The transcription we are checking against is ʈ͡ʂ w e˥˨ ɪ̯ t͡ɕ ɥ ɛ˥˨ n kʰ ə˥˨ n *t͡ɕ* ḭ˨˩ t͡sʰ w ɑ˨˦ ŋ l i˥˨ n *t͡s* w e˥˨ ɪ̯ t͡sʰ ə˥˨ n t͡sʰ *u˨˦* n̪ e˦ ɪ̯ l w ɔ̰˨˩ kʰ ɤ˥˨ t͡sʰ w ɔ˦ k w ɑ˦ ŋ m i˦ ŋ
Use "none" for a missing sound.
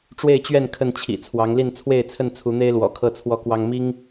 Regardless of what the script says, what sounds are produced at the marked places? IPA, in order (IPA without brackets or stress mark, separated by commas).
t͡ɕʰ, t͡sʰ, u˨˦